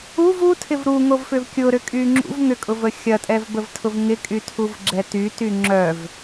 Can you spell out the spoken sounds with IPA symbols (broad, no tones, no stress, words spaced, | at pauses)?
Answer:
uv utʰɪv ɾuŋovfʏv kʲʊɾʏkʼy ŋ͡ǁṵv ŋʏkʼʊvə xʲɐtʼɛvbəvtʰʊv ŋɪkʼytʰuvɡ͡ǁɛ tyty ŋ͡ǁœv